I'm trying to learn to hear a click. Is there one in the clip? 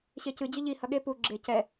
yes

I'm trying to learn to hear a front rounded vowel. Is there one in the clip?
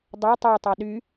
yes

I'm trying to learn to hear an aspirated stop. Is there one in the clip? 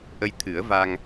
yes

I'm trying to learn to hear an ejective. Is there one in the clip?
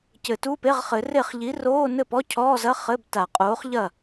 yes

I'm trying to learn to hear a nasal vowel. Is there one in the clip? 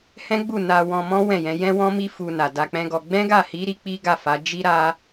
yes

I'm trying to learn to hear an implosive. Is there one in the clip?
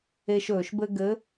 no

